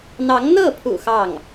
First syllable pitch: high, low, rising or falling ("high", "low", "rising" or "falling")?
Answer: rising